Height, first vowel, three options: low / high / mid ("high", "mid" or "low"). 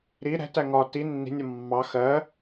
high